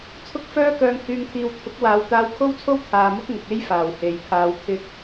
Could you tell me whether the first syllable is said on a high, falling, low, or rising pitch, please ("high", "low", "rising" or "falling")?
high